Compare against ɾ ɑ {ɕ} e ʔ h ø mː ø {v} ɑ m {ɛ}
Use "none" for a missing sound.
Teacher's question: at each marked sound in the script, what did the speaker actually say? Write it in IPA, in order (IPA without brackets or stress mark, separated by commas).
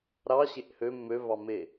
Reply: ɕ, v, e